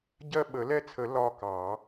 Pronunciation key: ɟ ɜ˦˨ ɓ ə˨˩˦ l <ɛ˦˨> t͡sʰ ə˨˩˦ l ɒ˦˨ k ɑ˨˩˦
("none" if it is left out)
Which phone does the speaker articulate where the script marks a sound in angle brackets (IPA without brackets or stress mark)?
ɛ˦˨